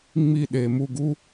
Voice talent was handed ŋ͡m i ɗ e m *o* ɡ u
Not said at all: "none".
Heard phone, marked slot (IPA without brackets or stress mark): u